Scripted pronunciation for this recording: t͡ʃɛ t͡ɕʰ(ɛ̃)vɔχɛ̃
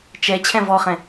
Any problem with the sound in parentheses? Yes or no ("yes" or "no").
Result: no